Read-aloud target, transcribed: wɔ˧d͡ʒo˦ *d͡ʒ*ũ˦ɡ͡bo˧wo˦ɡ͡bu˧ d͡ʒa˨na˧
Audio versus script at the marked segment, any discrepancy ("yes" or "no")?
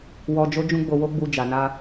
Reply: no